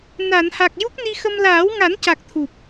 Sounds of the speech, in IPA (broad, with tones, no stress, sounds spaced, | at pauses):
n a˨˩˨ n h a˨˩ k̚ j u˦˥ k̚ n i˧ x ə˧ m l aː˨˩˦ w ŋ a˨˩˦ n c a˨˩ k̚ t̪ʰ u˨˩ p̚